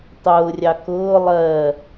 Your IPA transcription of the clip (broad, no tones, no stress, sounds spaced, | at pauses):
tˤ ʊː rʲ ɑ k ʊː lˠ ɜ